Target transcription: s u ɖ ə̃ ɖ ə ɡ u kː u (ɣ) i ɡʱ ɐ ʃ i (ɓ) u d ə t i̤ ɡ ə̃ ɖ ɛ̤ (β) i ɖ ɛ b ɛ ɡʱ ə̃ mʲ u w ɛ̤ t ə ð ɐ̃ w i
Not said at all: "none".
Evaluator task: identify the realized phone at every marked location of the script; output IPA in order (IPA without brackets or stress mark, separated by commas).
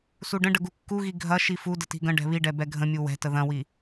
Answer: ɣ, f, β